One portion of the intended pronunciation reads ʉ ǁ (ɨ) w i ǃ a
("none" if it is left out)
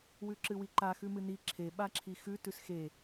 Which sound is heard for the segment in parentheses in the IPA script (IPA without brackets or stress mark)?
ɨ